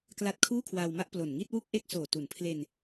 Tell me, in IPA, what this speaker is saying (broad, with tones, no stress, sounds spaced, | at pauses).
k l a˦˥ t̚ kʰ uː˥˩ kʰ w aː˧ w m a˥˩ ʔ p l o˨˩ n ŋ i˥˩ t̚ w u˥˩ k̚ ʔ e˥˩ k̚ s oː˨˩ t u˩˦ n pʰ l e˧ n